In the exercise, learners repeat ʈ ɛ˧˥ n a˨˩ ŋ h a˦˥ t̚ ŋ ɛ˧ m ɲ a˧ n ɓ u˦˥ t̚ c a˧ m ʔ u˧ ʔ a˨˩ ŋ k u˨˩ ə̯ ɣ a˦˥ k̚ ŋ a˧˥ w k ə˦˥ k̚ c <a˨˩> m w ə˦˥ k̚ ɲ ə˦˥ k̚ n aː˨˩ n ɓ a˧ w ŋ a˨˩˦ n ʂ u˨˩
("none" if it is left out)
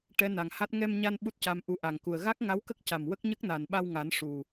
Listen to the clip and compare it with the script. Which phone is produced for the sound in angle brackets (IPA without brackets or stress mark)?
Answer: a˨˩